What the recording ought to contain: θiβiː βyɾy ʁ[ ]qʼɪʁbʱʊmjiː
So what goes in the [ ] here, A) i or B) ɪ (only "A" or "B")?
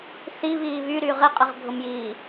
B